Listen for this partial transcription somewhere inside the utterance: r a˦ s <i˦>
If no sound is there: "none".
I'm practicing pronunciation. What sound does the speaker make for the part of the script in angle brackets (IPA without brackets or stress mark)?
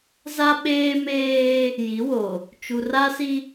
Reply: i˦